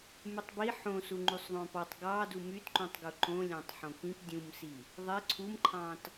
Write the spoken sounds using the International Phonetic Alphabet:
mytˤbi ħõsu ŋ͡ǃysˤðˤõpɑtˤ ɡɑ dumytǃũtˤɡu ǃõlʲɑ̃tˤ ħõkĩp dʲũmsi | ðˤe ǀʰumǃʰɑ̃t

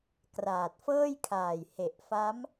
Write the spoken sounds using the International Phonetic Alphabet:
kraː˨˩t̚fɤː˥˩jkʰaː˨˩j he˨˩ʔfa˦˥m

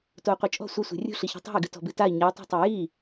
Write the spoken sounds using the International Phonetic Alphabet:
tou̯qʷit͡ʃʼɔ̤ sʷɘsʷe̤ rʲṳ ɬiçɔ̤tˤa̤i̯ɡɨ tɔ̤bɨtai̯ ɲatˤa̤tˤu ji

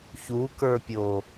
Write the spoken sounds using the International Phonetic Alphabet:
çukə˞pʲo

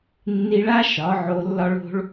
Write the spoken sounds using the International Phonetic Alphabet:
nːi˧ɭa˦ ʃɒ˨˦ʕo˧lːɒ˦ɭ o̤˦ɭ

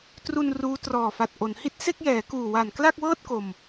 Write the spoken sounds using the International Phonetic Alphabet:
tru˧n ruː˦˥ trɔː˨˩fa˨˩t̚ ʔo˩˦n hi˦˥t̚se˥˩k̚jɛː˩˦ kuː˨˩wa˨˩n kla˥˩k̚wɤː˥˩t̚ko˨˩m

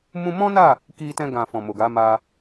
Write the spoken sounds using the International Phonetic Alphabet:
mũ˧mɔ̃˦na˦˨ | ki˧tɛ̃˧ ɡã˨ fɔ̃˨mo˨ɡa˨˦ ma˦

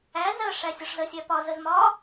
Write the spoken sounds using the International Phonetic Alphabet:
æ zɜ ʂæsʲɒʂzəsʲæ pɒzəz mɒ

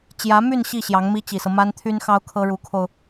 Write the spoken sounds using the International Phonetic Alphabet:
t͡ɕjä˧˥my˥˧n ɕi˥˩ ɕjɑ˧˥ŋmi˥t͡ɕi˨˩sɤ˦ ma˥nt̪ʰy˥nxɑ˥ʊ̯ kʰɤ˥ɻu˧˥kʰo˧ʊ̯

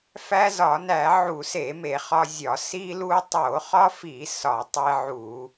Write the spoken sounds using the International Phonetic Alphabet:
fæ˦zɒ˧˩˧ næ˧˩˧ ʕu˧˩˧se˧˩˧ me˧˩˧χɒ˦zʲɒ˧˩˧ si˦lu˦ tˤo˧˩˧χɒ˦fi˧˩˧ sɒ˧˩˧tˤe˦ʕu˧˩˧

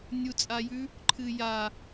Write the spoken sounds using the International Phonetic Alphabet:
nʲut͡sʼajʉ | ǃʰɨja

